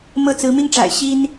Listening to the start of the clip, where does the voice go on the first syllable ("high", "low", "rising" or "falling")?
falling